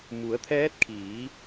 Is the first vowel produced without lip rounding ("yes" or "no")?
no